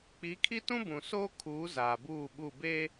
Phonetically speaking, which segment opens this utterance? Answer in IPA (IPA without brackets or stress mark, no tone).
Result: k͡p